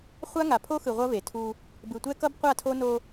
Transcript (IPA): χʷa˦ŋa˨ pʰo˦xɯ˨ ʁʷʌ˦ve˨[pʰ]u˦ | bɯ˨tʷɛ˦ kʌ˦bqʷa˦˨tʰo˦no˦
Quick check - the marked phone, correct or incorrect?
incorrect